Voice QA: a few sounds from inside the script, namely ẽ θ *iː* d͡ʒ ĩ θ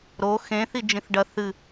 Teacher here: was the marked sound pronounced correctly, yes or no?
no